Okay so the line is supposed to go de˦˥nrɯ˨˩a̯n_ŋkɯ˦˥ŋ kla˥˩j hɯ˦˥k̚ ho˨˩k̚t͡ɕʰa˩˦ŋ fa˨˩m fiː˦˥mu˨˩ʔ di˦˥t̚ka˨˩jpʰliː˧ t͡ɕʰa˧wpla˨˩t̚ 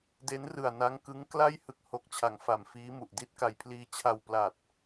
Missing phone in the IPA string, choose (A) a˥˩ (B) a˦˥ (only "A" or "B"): B